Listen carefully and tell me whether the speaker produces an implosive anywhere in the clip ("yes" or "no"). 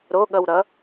yes